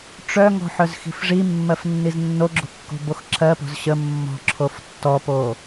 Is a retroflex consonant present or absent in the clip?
present